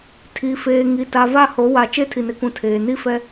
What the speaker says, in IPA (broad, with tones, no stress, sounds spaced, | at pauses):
tʰ i˨ f eː˨ ŋ i˨ t a˨ v a˦˨ h o˨˦ w a˨ t͡ʃ e˦ tʰ i˨ n ɪ˨ k ũ˨ tʰ eː˨ n i˦ f ɛ˦